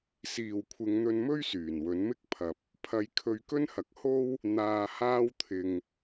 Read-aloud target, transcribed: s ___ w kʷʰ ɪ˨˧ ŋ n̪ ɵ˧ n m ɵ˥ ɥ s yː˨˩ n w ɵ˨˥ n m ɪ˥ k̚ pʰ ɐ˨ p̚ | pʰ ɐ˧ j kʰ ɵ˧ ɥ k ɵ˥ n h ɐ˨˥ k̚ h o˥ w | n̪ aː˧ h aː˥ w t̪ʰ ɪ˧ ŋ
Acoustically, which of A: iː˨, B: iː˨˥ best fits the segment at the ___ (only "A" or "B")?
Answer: A